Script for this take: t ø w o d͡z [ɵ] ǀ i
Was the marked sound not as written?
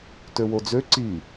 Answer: yes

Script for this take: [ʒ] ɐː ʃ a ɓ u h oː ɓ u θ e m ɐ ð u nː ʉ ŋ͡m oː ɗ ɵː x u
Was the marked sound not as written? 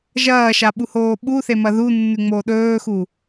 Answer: no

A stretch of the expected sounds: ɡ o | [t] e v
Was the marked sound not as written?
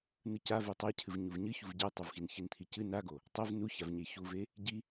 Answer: yes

